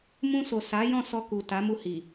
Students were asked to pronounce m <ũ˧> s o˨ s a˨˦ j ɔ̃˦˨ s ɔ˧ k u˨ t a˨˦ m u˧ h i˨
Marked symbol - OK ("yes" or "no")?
yes